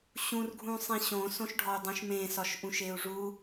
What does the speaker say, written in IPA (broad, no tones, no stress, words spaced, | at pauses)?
ɕũr ɡʱũsˤĩɕõ sõʃɖʱɒu̯dˤũʃmẽ sɒʃʔũʃeu̯ʐu